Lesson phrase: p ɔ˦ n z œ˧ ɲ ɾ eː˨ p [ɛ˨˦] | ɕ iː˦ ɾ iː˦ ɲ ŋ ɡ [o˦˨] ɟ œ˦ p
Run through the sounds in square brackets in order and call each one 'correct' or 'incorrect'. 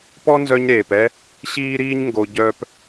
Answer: incorrect, incorrect

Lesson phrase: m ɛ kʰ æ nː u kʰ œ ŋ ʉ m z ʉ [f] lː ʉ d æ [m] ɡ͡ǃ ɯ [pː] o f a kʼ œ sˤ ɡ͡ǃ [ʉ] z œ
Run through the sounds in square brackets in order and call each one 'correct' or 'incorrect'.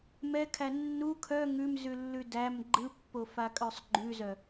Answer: incorrect, correct, correct, correct

